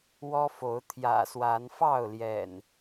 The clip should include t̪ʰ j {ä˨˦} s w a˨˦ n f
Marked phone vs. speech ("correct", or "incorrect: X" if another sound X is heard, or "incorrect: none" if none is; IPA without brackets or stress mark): incorrect: ä̰˨˩